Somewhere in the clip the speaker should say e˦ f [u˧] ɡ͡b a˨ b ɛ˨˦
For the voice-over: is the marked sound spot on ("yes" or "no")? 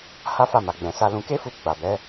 yes